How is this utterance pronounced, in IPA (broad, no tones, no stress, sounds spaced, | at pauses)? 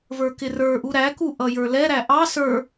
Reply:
v ə˞ k ɪ r ə˞ ʔ u ɾ æ k u ʔ ʌ j ə˞ l ɛ ɾ æ ʔ ɑ s ə˞